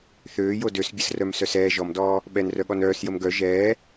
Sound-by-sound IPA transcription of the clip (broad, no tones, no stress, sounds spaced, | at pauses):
θ øː j o d ø s bʲ ə s r œ m s œ s ɛː ʒ ɔ m d ɔː | ɓ ɛ n r œ ɠ ɔ n œː s j ə m ɡ œ ʒ ɛː